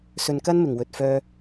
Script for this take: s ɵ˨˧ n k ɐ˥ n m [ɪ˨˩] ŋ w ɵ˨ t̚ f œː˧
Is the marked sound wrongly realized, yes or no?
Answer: no